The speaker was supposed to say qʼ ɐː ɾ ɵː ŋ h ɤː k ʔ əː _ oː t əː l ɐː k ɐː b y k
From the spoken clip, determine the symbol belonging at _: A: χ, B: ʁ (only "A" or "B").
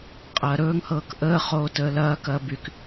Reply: A